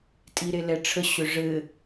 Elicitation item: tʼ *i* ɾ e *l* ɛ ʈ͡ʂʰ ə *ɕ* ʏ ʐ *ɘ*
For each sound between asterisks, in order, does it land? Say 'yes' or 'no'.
yes, yes, yes, yes

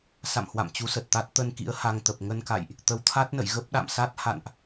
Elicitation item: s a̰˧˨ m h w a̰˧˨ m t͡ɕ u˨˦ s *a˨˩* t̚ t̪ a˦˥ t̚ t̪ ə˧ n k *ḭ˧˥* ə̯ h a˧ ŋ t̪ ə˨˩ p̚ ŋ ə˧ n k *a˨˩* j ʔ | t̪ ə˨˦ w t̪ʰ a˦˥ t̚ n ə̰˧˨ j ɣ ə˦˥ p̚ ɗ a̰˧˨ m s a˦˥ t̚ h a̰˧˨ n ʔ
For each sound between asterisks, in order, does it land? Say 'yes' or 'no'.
no, yes, no

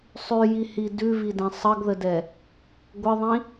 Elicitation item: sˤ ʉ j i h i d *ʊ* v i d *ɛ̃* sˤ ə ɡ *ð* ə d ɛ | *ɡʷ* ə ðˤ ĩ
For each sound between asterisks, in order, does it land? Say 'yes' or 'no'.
no, yes, yes, yes

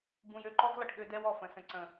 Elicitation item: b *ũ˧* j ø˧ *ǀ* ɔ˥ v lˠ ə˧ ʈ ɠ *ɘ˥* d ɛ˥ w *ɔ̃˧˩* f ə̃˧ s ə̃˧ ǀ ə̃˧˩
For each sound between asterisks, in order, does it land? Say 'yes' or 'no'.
yes, no, no, no

